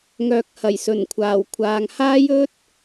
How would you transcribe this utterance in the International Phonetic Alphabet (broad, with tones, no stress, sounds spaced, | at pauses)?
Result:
ŋ œː˨ k̚ h ɐ˨˩ j s ɵ˨˩ n kʷʰ aː˨˩ w kʷʰ aː˨ ŋ h aː˥ j ɵ˥ t̚